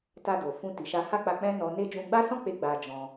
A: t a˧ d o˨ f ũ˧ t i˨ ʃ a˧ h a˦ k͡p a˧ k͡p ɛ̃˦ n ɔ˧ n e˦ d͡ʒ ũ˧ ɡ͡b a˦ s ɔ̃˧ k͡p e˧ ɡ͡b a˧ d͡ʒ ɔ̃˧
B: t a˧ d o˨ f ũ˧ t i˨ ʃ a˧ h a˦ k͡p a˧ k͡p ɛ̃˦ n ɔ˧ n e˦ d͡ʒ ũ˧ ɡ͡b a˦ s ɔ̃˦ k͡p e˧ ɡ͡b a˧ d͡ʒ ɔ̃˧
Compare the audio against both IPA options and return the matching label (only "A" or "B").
B